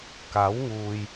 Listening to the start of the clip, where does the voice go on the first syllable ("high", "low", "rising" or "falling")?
rising